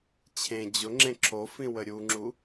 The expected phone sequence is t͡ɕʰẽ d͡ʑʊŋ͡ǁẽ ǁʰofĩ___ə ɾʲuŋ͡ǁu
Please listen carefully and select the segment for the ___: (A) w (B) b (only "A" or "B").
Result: A